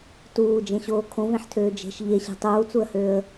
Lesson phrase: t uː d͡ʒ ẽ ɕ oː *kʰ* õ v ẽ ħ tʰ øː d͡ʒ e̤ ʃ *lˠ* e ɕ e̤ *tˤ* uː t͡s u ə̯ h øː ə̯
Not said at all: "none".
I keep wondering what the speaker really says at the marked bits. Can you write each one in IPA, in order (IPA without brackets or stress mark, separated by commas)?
kʰ, ʎ, tˤ